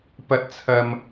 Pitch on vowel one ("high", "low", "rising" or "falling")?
high